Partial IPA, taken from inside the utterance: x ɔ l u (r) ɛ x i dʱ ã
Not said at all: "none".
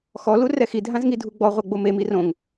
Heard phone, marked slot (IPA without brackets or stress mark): r